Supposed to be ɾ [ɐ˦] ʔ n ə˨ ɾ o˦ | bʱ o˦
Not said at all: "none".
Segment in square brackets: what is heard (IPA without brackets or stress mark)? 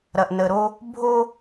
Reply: ɐ˨